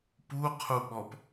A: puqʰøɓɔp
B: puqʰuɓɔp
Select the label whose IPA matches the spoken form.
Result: B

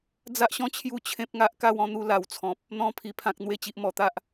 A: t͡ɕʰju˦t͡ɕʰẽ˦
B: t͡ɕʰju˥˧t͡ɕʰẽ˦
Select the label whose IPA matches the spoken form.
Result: A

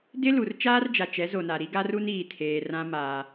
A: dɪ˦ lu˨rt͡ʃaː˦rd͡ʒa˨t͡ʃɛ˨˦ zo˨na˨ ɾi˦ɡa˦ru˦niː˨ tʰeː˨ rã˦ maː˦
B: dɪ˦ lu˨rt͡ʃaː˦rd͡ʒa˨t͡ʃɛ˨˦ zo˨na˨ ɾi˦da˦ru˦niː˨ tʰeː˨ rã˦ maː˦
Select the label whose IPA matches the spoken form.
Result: A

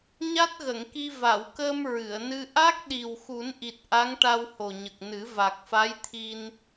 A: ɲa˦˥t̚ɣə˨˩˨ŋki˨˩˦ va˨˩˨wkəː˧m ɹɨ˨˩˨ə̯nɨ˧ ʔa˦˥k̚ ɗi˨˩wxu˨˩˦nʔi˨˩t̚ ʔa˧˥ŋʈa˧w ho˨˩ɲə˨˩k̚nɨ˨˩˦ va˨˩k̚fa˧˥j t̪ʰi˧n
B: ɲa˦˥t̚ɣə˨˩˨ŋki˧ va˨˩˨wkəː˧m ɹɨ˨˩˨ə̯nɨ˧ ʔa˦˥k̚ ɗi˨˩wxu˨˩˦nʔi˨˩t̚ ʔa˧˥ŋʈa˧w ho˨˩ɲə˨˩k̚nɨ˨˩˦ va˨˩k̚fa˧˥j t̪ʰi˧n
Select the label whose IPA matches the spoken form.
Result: B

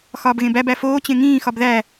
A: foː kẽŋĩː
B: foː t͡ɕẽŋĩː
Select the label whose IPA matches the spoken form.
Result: B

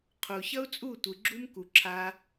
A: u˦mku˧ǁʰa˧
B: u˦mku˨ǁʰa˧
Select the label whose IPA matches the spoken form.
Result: B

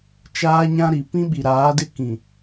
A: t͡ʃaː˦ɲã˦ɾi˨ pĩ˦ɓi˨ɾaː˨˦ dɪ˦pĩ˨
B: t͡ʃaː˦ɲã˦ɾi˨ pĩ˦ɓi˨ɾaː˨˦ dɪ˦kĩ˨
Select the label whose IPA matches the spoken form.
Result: B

